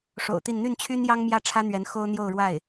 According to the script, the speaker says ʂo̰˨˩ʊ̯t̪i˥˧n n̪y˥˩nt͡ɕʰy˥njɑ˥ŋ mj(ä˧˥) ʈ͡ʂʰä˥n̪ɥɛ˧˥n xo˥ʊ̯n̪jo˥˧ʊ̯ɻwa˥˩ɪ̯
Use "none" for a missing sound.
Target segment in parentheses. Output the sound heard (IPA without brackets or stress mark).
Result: ä˥